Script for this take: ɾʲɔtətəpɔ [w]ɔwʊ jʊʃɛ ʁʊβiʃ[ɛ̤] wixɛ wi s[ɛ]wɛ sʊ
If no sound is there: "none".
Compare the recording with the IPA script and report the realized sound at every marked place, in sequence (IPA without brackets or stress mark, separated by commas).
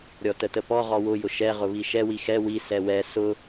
ʁ, ɛ, ɛ